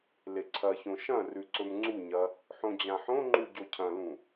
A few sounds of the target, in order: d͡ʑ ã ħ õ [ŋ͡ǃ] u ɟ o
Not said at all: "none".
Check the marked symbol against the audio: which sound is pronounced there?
ŋ͡ǃ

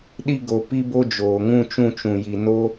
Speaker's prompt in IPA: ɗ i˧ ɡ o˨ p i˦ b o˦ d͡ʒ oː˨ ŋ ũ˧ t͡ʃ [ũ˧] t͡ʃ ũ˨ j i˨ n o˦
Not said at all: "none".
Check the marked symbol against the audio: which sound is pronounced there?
ũ˧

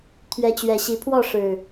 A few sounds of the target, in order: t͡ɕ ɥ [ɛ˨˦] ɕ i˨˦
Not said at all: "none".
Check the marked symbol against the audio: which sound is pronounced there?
ɛ˨˩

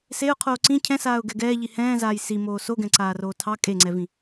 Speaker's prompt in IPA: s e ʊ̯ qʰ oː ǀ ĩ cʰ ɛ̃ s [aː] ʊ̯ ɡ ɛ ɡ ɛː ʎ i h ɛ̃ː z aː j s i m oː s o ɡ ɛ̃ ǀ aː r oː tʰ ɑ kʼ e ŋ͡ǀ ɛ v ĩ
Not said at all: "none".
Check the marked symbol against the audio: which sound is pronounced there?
aː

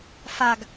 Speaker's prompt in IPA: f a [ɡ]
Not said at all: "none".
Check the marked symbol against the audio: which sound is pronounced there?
ɡ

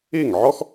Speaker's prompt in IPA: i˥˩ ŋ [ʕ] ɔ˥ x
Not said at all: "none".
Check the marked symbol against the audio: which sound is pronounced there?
ʕ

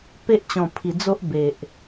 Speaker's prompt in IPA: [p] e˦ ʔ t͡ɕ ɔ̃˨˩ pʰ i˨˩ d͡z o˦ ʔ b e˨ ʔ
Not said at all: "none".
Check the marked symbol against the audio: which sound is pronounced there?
p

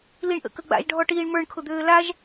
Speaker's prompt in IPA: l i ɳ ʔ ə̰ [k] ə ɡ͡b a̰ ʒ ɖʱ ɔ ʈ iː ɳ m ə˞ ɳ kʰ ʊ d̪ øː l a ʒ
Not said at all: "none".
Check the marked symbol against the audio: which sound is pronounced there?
k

